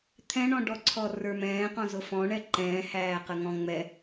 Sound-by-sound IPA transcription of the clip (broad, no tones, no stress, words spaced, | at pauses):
t̪ʰɛ̃ɳɔ̃ɖɔǀʰɔ rə˞mɛ̃ːqɔ̃zʊ fɔ̃ɳɛ ǃɛ̃ːhæː qəŋɔ̃ŋ͡mɛ